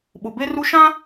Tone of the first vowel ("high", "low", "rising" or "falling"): low